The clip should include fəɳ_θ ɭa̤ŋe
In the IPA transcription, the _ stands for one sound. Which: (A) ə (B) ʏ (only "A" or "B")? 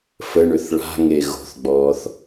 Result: B